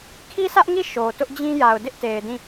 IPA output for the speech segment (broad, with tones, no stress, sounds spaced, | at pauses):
kʰ i˦ sʰ ä˦ ʔ ŋ i˦˨ ʃ o˨ t ʊ˦ ʔ d͡ʑ ĩ˦ j a˨ ʊ̯ d ɪ˦ ʔ t e˨ ɪ̯ d ĩ˦˨